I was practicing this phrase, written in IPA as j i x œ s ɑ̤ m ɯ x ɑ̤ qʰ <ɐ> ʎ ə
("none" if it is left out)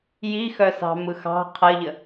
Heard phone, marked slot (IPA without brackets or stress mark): ɐ